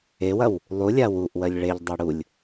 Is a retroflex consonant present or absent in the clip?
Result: present